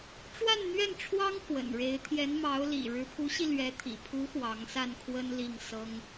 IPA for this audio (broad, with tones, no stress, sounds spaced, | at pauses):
ʈ͡ʂ w a˥˧ n n̪ ɥ ɛ˥˩ n ʈ͡ʂʰ w ɑ˥ ŋ x w ə̰˨˩ n ɻ e˧˥ ɪ̯ t̪ʰ j ɛ˧˥ n m ɑ˧˥ ʊ̯ l ḭ˨˩ ɻ ɻ̩˧˥ pʰ u˧˥ ɕ i˧ l ɥ ɛ˧˥ t̪ʰ ḭ˨˩ pʰ u˧˥ x w ɑ˧˥ ŋ s a˥˩ n kʰ w ə˥ n l i˥˩ ŋ s ɤ˥ ŋ